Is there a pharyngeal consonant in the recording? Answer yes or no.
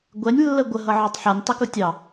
yes